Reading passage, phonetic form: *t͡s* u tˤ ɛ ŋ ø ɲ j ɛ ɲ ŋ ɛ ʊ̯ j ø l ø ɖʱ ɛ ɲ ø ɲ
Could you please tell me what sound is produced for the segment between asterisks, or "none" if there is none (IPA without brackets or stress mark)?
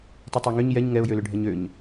tˤ